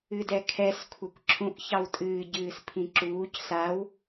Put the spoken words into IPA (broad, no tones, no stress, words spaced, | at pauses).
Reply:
ɨdɛkʰɛs kʷʰakʷǁʰũʔ çɑwtʼɨː ɟɨːspʰĩǁuːc saw